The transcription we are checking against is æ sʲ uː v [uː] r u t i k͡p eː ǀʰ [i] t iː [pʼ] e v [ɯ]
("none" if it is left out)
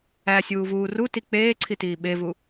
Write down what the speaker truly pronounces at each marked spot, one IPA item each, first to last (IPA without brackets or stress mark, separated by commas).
uː, i, ɓ, u